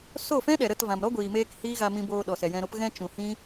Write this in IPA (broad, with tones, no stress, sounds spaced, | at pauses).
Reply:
s o˦˨ f ɛ̃˦ ɗ ɛ˨ ɾ ə˦˨ t v ã˨ m ɾ ɔ˦ ɡʷ iː˨ m eː˧ k h iː˦ ɣ a˧ m ĩ˧ b oː˧ ɗ ɔ˨ s ɛ˨ j ɛ̃˧ ɾ o˦ p ɣ ɛ̃˧ t͡ʃ ũ˨ h ĩ˦